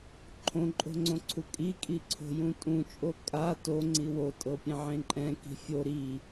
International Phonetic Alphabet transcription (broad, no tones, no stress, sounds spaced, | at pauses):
ǃʰ õ ǃʼ o̤ ŋ͡ǀ õ ǀʰ u kʼ i kʼ i ǀʰ o̤ j ũ tʼ ũ t͡ʃʼ o kʼ a t o ŋ͡ǀ i w o tʼ ɤ pʲ ẽ ʕ ẽ ǃʼ ɛ̃ k i̤ fʲ o ɾ i